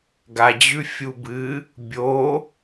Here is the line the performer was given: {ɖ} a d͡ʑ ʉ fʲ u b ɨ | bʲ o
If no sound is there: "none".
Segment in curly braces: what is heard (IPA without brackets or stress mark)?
ɡ